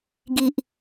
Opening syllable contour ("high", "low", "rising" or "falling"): low